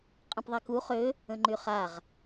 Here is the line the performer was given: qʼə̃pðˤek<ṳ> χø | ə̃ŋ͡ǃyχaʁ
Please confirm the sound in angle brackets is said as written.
no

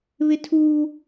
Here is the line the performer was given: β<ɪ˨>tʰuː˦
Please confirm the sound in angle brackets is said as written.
no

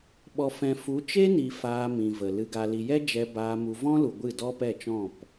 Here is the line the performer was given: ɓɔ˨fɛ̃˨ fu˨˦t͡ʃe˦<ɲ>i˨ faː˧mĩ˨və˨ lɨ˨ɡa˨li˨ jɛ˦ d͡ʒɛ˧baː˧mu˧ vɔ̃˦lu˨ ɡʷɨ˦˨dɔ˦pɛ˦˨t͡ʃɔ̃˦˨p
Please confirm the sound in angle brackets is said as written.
no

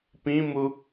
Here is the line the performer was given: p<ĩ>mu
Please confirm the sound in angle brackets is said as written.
yes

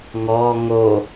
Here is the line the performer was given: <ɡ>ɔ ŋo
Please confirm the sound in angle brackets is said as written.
no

